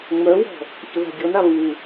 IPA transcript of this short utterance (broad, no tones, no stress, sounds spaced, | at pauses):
ŋ͡m œ w ɔ̤ | ç ə ð a̤ dʲ ɔ n a β u